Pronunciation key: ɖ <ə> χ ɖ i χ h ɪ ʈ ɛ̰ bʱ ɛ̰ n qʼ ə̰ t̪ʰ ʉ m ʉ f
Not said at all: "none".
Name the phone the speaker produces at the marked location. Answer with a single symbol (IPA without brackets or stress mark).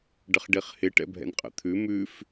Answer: ə